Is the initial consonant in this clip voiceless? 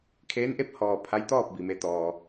yes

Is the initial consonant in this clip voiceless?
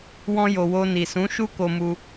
no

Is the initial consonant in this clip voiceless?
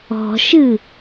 yes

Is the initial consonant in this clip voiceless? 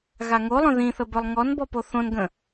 no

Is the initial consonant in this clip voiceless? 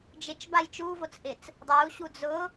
no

